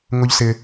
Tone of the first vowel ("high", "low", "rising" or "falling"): low